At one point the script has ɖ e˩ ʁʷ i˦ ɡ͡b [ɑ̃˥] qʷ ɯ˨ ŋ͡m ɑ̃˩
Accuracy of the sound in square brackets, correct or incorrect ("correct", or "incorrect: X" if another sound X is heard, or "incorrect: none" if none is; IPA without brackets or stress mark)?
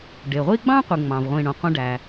correct